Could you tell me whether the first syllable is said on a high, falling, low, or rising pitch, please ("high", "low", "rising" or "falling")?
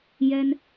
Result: high